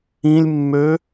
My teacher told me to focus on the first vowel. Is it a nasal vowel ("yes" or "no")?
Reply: yes